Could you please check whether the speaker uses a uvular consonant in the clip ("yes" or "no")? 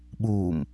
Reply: no